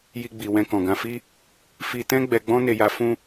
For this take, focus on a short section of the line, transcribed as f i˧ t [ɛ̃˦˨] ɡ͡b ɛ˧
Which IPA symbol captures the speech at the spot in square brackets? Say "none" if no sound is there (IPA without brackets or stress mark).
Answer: ɛ̃˦